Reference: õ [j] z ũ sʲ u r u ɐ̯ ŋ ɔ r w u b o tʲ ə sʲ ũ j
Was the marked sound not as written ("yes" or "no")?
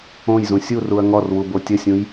no